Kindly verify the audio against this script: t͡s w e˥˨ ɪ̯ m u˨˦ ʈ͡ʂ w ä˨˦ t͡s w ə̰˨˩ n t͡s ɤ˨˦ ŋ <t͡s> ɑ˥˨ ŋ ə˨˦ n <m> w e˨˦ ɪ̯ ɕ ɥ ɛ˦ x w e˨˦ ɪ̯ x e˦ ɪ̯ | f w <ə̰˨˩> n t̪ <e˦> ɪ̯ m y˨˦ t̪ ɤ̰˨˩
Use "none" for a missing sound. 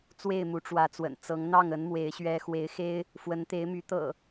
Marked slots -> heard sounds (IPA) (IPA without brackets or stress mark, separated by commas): n̪, m, ə˨˦, e˨˦